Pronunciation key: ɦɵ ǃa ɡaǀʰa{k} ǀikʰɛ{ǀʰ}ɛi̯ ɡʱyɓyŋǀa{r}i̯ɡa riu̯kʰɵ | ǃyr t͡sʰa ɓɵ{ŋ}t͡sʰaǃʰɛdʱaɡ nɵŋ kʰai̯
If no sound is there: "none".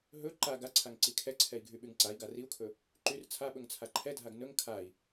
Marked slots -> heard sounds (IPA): ŋ, ǀʰ, none, ŋ

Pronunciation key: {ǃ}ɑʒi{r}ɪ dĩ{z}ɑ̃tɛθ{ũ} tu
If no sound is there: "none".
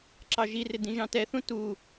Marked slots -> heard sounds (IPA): ǁ, r, ʒ, ũ

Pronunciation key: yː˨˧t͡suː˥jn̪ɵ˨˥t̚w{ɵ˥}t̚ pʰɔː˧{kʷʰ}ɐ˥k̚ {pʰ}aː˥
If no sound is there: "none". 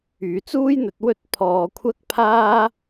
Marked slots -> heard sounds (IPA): ɵ˥, kʷʰ, pʰ

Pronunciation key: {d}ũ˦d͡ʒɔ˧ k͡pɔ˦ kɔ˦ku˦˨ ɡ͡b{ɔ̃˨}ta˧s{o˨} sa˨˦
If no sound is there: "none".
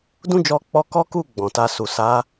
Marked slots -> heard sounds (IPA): d, ɔ̃˨, u˨

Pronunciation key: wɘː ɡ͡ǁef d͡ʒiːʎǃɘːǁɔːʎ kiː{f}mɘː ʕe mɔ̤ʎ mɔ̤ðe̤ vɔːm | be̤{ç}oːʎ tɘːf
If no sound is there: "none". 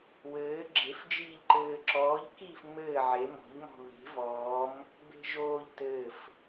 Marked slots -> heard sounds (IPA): f, ʒ

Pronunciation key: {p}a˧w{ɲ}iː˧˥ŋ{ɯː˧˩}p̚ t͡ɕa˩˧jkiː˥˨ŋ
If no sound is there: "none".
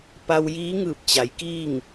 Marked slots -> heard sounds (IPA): p, j, ɯː˧˩

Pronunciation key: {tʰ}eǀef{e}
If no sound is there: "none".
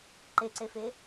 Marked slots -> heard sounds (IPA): ǃ, e

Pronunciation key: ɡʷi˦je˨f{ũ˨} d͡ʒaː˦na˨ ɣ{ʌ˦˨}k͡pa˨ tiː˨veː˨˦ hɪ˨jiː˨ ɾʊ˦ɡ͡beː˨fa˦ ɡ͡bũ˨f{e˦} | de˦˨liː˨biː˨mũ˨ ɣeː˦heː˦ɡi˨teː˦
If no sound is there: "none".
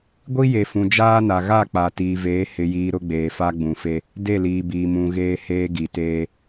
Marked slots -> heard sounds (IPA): ũ˨, a˦˨, e˦

